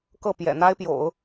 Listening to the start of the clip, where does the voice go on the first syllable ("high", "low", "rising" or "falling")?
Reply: falling